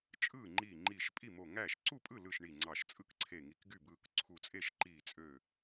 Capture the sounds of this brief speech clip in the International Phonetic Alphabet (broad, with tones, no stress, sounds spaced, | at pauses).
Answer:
t͡ʃʼ ɯː˥˩ ŋ͡ǃ iː˧˩ ŋ͡ǃ iː˧˩ ʃ pʼ i˥˩ m o˧˩ ŋ æː˥˩ ʃ ǀ u˥˩ pʼ ɯ˥˩ l ɯ˧˩ ʃ ɳ i˧˩ ŋ͡ǀ ɑ˧˩ ʃ t͡sʼ ɯ˥˩ k ǀʰ e˧˩ ŋ i˧˩ k ɡ y˥˩ b ɯː˧˩ k ǀʰ u˧˩ t͡sʼ e˥˩ ʃ ǃ iː˧˩ t͡sʼ ø˧˩